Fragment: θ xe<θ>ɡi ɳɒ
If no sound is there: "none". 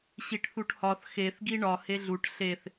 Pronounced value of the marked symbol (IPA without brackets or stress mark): θ